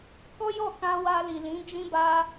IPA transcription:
kɔ˦jɔ˦˨ kã˧wa˧ li˨lĩ˨˦ d͡ʒĩ˧ba˧

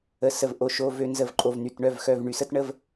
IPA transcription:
ə˩˧˩ sə˩˧˩vʔo˩˧˩ʃo˩˧˩ vø˧˩ nzə˧˩vǃʼo˩vny˩˧˩t ɳœ˧˩vxœ˩˧˩vɳy˩sə˦t ɳə˦v

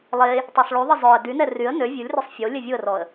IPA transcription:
lˠe | tˤøsˤɭyðˤi zˤœə̯ dynɛ ryə̯ nø vʲulʲrøsˤ fʲo lʲɛvʲuə̯rɔə̯

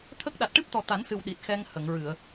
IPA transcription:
t̪ʰə˦˥k̚ ɗa˨˩t̚ʈɨ˦˥p̚t̪ɔ˨˩ t̪a˨˩˦nsɨ˨˩w ɗi˨˩t̚xɛ˧ŋ hə˨˩˨ŋɹɨ˨˩˨ə̯

